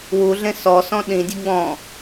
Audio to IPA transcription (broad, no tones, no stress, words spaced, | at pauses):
wuɮẽ sɔsɔ̃ ɗĩdʲə ɡ͡bɔ̃